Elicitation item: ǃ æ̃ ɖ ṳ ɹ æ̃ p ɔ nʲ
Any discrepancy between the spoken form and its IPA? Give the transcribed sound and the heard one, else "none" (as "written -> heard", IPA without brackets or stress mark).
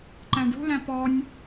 ɹ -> l